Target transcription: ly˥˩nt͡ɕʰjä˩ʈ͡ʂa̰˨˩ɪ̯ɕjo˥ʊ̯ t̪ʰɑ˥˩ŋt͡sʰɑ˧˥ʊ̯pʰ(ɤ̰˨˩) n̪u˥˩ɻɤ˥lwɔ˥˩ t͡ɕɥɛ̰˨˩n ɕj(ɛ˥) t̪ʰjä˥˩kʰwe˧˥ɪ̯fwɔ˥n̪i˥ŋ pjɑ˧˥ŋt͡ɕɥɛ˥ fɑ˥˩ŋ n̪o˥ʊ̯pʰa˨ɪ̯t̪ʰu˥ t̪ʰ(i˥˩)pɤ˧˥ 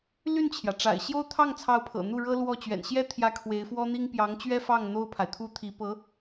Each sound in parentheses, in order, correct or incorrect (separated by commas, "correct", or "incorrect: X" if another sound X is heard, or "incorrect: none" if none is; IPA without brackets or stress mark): correct, correct, incorrect: i˧˥